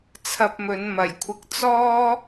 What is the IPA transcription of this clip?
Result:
t͡sʰ ɐ˧ p̚ m ɵ˨˧ n m ɐ˨˩ j kʷʰ ɪ˧ k̚ t͡s ɔː˥

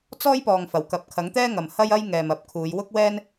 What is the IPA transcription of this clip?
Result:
t͡s ɔː˥ j p ɔː˨ ŋ f ɐ˨˩ w k ɐ˨ p̚ kʰ ɐ˨˥ ŋ t̪ ɛː˥ ŋ ɐ˨ m h ɐ˥ j ɐ˥ j ŋ ɛː˨ m ɐ˨˥ p̚ kʰ uː˨˧ j w ʊ˥ k̚ w ɛː˥ n

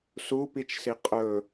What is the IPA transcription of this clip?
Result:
s u p i t͡ʃ s i qʼ ɵ

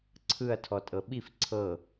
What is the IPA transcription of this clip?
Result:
ǀʰ ɯ ɐ̯ tʰ ɔ tʼ ɤ ɓ i f ǀʰ ɤ

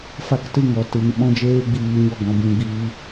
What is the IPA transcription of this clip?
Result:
f a˦ k t ɨ˦˨ ŋ ɔ˨ t ɨ˨ ŋ ɓ ɔ̃˧ d͡ʒ eː˧ ɡ͡b iː˨ ɲ ɔ˦˨ ɡ ɔ̃˧ b ĩ˧ ɡ͡b iː˧

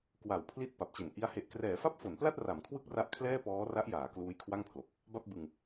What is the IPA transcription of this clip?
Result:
k w a˨˩ w pʰ l i˦˥ t̚ p a˨˩ p̚ t͡ɕ e˨˩ n ʔ i˦˥ a̯ h e˨˩ ʔ k r ɛː˩˦ f a˥˩ p̚ f o˩˦ n p l a˥˩ t̚ r a˩˦ m kʰ w ɯ˥˩ k̚ r a˦˥ ʔ kʰ l ɛː˥˩ p ɔː˦˥ r a˦˥ ʔ j aː˩˦ k l uː˦˥ j kʰ w a˥˩ ŋ pʰ l o˨˩ k̚ | b a˥˩ p̚ b ɯ˧ ŋ

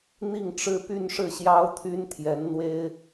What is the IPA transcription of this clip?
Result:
n̪ i˥˩ ŋ ʈ͡ʂ ɻ̩˥ p y˥˧ n ʂ ɻ̩˥˩ ɕ j ɑ˥ ʊ̯ t̪ʰ y˥ n t̪ʰ j ɛ˧˥ n n̪ w e˥ ɪ̯

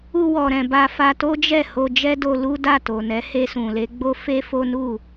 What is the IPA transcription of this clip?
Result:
u˧ w ɔ˨ ɾ ɛ̃˨ b a˧ f a˧ t o˦ d͡ʒ ɛ˦˨ h o˧ d͡ʒ ɛ˦ d o˧ l u˦ d a˦˨ t o˨ n ɛ˨˦ h e˧ s ũ˨ l e˨˦ ɡ͡b o˦ f e˦ f o˦ n u˦˨

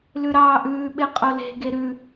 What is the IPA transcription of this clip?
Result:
l ʉ ɾ ɑː ʔ ʉː ɓ e qʼ o l e̤ ɡ e ɾ ʉ

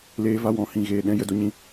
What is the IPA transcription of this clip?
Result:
l eː˧ v a˧ w ɔ̃˨ h ĩ˨ ɣ eː˨ ɗ ɛ̃˧ j ə˨ d o˧ ɲ ĩ˧

